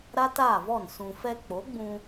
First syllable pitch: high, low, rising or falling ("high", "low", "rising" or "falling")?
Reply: high